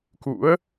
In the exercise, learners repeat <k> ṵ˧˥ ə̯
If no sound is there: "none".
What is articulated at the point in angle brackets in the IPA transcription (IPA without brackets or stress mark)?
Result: k